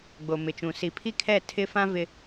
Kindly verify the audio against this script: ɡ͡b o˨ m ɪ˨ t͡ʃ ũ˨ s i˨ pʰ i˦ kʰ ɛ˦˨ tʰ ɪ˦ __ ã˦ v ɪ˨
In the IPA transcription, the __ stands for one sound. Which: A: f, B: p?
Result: A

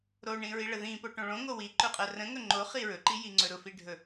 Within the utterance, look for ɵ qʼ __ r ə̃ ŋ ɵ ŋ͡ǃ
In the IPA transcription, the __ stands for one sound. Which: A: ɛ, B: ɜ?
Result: B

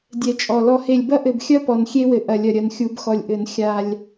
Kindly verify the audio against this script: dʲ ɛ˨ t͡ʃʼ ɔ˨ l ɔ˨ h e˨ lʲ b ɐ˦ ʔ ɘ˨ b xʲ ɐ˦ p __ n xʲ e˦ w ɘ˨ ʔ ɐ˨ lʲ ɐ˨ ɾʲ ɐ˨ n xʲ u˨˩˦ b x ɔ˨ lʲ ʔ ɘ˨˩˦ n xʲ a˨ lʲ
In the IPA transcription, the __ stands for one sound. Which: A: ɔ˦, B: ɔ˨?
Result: B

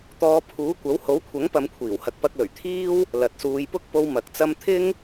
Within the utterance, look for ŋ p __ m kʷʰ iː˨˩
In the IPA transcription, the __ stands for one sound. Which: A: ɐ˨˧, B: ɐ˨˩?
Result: A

